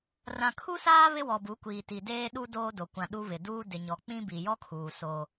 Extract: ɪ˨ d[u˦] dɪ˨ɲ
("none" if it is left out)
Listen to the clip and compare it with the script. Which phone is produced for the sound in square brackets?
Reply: uː˦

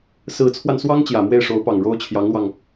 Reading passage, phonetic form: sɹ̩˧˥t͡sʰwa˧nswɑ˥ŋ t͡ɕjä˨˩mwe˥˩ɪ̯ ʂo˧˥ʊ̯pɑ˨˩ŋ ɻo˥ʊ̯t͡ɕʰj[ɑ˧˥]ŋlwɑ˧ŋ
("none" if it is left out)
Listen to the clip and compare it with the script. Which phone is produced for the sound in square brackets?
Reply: ɑ˧˥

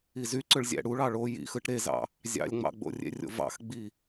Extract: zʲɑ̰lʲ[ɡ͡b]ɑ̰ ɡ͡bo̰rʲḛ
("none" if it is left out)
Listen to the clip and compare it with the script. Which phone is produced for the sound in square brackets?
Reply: ŋ͡m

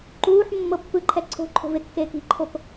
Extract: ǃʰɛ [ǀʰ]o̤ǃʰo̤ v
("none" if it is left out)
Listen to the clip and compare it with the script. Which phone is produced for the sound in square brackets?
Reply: ǀʰ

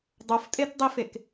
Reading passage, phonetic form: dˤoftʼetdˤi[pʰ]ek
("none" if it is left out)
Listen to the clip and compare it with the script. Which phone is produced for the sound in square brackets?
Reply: f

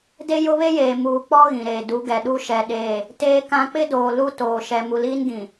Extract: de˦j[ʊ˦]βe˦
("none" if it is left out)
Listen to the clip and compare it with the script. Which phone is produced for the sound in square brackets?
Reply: ʊ˦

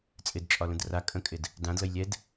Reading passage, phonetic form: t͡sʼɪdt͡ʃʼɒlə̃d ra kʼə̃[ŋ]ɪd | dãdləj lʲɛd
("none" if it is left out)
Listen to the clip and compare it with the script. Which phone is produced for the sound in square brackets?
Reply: kʼ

